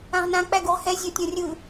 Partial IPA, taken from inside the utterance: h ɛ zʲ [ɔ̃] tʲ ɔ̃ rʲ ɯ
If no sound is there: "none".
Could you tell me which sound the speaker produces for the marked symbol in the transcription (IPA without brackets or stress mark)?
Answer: ɔ